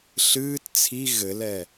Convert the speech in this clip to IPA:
ɬɨːt t͡sʰi ɣɘlɛ

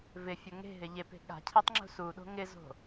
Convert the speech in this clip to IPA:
vɪfʲo ŋe̤ɦɪ ʎepe̤ ɠa̤cʰetˤŋ͡ǁṳ suɗo̤ ŋɪzo̤

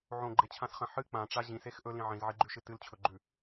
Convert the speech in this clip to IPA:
ʕõɡ͡ǃet͡ɕʰãsχɐ̃ ħɨ k͡pãʈ͡ʂa ʑĩsex ʔɵlĩ ʕĩzʕiɡ͡ǃʉʃɨ tɨlt͡ɕʰɵɡ͡ǃʉ

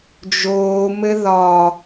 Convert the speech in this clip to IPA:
d͡ʒoːmɘ ðɒ

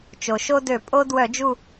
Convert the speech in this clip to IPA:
t͡ʃo˩ʃo˦dø˧˩˧ pʼo˦dwœ˧˩˧d͡ʒu˦˨

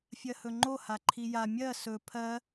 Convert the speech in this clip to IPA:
fʲɜhɵŋ͡ǃo haǃʰija mʲɜ sɵ pʰɜ

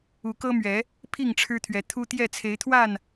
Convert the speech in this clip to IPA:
u˨˦kɤ˦mɥɛ˨˦ | pʰi˥˨ŋʈ͡ʂʰɻ̩˦t̪ʰɥɛ˨˦ t̪ʰu˦t̪jɛ˥˨ t͡sʰe˨˦ɪ̯t̪ʰwa˥˨n

